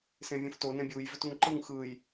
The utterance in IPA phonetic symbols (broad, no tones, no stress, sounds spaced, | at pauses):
s ẽ vʲ ũ f t o n ẽ bʲ u j v ʏ t u ŋ ǃ ɯ ŋ x ɯ j